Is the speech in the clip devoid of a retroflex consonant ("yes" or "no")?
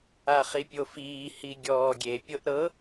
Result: yes